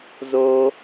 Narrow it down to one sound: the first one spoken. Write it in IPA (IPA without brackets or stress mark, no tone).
z